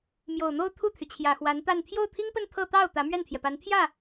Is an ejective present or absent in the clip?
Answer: absent